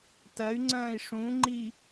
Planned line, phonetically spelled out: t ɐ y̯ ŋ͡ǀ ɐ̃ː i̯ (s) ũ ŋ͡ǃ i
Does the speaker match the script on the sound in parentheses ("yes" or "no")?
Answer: no